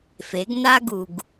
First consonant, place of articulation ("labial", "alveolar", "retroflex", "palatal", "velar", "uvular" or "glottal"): labial